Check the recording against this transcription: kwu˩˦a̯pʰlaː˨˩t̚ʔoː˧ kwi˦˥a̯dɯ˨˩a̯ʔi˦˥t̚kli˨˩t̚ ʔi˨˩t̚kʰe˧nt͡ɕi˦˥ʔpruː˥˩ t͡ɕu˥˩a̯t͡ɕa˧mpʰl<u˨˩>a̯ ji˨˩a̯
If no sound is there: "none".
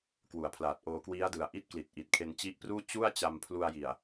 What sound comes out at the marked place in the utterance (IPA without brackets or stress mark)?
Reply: u˧